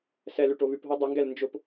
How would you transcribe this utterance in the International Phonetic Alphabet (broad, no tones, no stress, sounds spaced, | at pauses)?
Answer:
s ɛ l ʉ ʈ o β ʉ p ɦ o dˤ ʊ ŋ ɡ ɛ l n d͡ʒ ʊ p